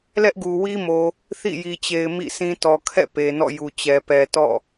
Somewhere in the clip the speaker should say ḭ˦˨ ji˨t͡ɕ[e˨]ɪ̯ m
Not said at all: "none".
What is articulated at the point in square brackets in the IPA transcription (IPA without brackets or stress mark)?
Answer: e˨